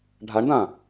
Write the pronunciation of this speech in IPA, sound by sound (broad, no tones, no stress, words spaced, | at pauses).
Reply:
ɖʱaɳdã